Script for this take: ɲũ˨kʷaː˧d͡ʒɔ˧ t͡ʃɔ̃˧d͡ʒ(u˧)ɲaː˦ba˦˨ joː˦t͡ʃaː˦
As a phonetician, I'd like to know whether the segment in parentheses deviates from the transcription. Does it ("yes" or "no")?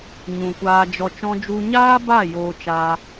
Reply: no